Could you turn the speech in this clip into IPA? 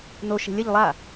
no ʃe̤lʲɛʎ lˠa

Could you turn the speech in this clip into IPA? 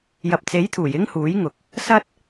jɐ˨p̚t͡se˨˥jt̪ʰuː˨˩j ɪ˥ŋhuː˨˥jŋʊ˨k̚ | sɐ˥t̚

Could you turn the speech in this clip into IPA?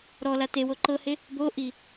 ɾɔla tewo ǃɤhe | boʔi

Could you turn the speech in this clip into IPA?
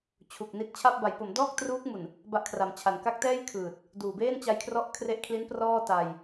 t͡ɕʰu˨˩k̚ni˦˥t̚ t͡ɕʰa˥˩p̚ ba˩˦jpo˩˦m dɔː˥˩k̚truː˦˥k̚mu˨˩n | ba˦˥ʔkʰra˩˦mt͡ɕʰa˨˩n ka˦˥k̚tɛː˥˩jkʰɯː˨˩t̚ | duː˨˩beː˥˩n t͡ɕa˧jkʰrɔ˦˥ʔ kʰre˦˥ʔkʰli˦˥n prɔː˥˩ta˧j

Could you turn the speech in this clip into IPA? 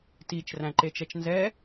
tit͡ʃræ̃ǃe t͡ʃɛt͡ʃnzɛ

